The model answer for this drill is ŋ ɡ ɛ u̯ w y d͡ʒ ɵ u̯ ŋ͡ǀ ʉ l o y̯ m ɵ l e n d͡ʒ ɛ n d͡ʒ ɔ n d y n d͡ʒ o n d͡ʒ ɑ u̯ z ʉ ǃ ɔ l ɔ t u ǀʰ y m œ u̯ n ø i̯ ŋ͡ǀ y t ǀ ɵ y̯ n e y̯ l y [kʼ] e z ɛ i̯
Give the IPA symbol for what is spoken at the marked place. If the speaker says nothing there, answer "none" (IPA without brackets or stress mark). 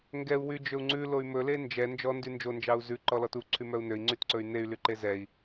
ǃ